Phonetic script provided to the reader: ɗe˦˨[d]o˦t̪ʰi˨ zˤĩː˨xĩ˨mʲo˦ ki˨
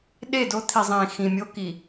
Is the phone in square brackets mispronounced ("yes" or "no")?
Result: no